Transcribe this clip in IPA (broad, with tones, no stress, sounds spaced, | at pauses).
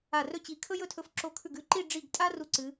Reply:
a˧˩ r ɵ˥˧ t͡ɕ i˧˩ kʰ ɵ˥ j ɵ˥˧ tʰ ɵ˧ f ǁ o˧ kʰ ʉ˧˩ ɡ ʉ˧ ǃ i˥˧ ɖ͡ʐ i˧˩ ɡ tʼ a˥ r u˧ ǀ ɨ˩˧